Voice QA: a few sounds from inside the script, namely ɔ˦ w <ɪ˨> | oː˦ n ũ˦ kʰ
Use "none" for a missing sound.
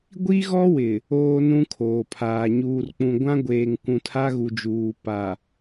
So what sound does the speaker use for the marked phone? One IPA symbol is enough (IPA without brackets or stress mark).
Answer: ɪ˨